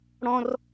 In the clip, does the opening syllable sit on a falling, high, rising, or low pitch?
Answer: high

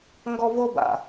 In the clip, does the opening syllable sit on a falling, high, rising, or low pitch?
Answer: high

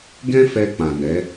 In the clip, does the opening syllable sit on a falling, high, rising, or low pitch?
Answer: high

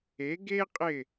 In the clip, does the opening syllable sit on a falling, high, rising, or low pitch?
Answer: rising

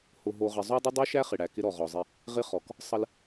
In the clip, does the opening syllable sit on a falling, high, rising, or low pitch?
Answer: low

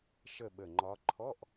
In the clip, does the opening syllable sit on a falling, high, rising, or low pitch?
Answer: falling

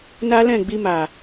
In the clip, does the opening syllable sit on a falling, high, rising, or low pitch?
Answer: high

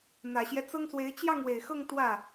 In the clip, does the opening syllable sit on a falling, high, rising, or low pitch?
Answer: low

